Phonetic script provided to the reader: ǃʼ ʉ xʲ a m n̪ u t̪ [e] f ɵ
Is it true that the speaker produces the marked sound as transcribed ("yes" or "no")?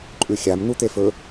yes